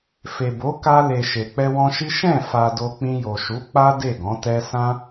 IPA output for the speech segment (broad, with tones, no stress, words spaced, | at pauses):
fe˨ bo˨˦ ka˧ le˨ ʃe˨ k͡pɛ˧wɔ̃˧ʃi˦ ʃɛ̃˦˨ fa˧do˧k͡pĩ˧jo˨ ʃu˨˦k͡pa˦ de˦˨ɡɔ̃˨˦tɛ˦ sã˦